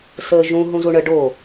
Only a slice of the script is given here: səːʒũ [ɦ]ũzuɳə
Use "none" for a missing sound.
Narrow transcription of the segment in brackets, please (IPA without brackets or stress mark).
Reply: ɦ